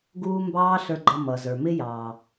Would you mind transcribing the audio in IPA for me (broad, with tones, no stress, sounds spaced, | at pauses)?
ɡ uː˧ m b ɑː˦ ɬ ə˞˧ ɡ͡ǃ ʌ˧ m ʌ˨ z ə˞˨ m ɪ˦ j ɑː˨